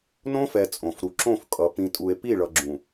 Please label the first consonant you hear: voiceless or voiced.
voiced